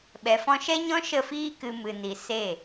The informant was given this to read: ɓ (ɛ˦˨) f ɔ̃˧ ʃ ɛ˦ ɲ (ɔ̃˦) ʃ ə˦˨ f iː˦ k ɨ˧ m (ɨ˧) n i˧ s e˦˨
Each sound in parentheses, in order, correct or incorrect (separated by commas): incorrect, correct, correct